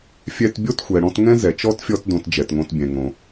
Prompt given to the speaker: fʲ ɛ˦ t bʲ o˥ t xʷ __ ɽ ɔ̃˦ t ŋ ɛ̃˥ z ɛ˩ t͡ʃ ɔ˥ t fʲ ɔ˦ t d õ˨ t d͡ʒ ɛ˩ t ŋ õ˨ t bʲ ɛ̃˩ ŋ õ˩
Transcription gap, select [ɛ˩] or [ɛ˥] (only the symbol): ɛ˩